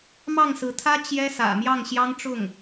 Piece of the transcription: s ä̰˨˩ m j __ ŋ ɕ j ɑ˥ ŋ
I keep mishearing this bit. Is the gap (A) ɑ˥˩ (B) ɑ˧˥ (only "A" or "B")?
A